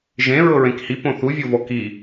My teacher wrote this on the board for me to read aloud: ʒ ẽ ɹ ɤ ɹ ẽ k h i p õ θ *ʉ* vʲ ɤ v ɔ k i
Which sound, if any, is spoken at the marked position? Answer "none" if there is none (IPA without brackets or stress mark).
u